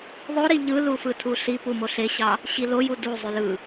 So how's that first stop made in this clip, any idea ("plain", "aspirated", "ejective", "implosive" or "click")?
aspirated